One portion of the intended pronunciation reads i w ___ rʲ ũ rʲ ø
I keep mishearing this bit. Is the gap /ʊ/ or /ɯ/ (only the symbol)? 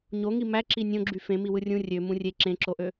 ɯ